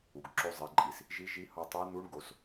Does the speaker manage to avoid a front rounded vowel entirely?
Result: yes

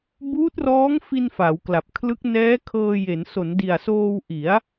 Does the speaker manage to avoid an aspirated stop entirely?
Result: no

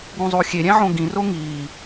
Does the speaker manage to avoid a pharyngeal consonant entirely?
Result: no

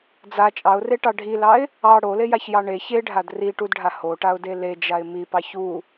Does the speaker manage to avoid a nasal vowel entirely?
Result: yes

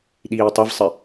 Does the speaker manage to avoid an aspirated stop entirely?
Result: yes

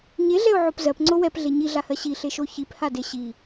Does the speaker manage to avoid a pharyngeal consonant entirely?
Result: no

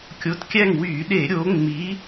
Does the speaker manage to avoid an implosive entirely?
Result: no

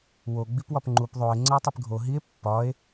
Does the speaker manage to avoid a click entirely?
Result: no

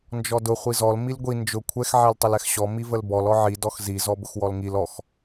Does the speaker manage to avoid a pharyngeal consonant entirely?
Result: no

